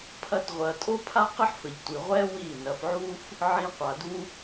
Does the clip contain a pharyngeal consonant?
yes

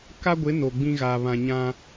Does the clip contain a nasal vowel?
yes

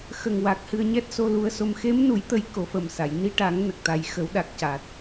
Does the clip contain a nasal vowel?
no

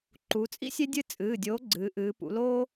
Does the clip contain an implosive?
no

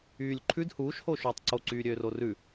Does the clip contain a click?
yes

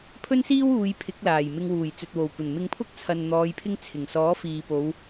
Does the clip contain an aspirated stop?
yes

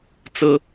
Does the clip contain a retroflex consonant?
no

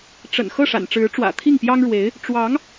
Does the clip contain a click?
no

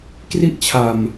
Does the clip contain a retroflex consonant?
no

